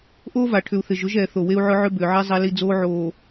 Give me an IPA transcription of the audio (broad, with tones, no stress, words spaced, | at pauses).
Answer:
ʔoː˦va˨ ʈʰʏ˨u̯ θɪ˨ʒʊ˨˦ʒ ɛː˨ θo˨we˦u̯ʕʊ˦ ʕʏ˦bʏː˨ʕe˦ zˤɛ˦li˦d͡zoː˦ʕoː˨